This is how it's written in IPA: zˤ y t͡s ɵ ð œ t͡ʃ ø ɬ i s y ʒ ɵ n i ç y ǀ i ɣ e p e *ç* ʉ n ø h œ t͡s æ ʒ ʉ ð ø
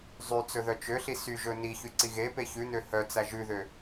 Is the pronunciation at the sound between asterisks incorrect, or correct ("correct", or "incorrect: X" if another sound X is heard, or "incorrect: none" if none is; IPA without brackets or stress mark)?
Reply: correct